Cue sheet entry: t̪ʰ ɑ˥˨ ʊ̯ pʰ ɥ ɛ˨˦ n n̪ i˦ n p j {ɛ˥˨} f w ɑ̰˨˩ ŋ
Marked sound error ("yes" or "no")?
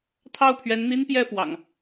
no